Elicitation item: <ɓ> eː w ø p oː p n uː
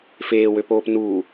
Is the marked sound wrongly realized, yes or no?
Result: yes